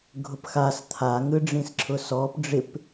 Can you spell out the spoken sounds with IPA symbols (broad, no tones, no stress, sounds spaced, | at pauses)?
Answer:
ɡʱ ʊ p x a s t̪ʰ a ŋ ɯ ɖ͡ʐ ĩ s ǁʰ ʊ s ɔ p ɖ͡ʐ ɪ p